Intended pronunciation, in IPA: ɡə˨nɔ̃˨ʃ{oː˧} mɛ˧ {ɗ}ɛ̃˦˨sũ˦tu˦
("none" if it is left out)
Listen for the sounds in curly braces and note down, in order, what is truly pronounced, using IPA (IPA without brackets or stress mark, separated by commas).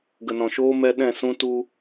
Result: oː˧, ɗ